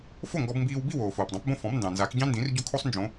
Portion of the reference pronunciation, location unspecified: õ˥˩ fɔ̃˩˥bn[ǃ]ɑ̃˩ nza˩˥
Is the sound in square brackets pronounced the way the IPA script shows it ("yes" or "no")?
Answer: no